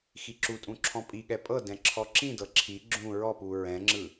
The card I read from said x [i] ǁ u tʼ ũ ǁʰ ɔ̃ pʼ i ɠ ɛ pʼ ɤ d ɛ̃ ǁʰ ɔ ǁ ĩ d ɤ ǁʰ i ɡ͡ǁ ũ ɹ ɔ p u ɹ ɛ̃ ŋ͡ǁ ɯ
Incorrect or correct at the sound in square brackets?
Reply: correct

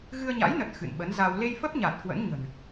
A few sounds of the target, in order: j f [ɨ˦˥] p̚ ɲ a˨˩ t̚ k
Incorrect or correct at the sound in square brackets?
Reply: incorrect: ə˦˥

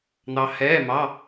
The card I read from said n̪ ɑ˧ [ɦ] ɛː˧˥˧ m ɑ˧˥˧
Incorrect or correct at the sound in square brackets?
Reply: incorrect: h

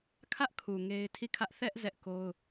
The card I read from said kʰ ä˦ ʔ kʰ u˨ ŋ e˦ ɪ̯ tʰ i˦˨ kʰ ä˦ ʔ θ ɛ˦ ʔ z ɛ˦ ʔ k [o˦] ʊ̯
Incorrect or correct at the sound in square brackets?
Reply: correct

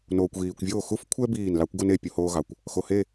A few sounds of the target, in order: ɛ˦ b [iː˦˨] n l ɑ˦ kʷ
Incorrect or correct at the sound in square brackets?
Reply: correct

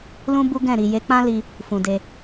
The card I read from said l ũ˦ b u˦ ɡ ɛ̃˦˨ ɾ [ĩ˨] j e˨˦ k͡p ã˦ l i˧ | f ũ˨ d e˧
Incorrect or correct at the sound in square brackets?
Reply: incorrect: i˨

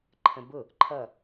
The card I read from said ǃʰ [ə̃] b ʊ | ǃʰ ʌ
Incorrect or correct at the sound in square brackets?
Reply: correct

